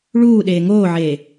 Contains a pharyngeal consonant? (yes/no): yes